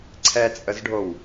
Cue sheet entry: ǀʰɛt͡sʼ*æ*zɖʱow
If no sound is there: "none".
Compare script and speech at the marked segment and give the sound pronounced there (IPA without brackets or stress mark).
ə